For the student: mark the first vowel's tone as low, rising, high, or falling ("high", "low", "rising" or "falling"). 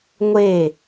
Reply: falling